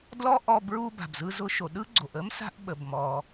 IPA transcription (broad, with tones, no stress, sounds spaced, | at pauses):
d l ɔ˥ ʔ ɔ˧ b ɹ u˧ b a̤˩ b z ɯ˧ z ʊ˧ ʃ o˩ ɗ ɯ˥ ɡ͡ǀ o˩ ʔ ə˥ m s a̤˧ ʔ ɓ ə˩ b m ɔ˩